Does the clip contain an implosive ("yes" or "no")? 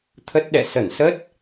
yes